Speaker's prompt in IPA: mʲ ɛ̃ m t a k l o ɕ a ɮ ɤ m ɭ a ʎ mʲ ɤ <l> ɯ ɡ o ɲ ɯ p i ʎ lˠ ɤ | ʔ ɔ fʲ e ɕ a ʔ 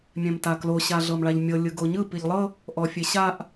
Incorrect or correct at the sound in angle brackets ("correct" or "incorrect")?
incorrect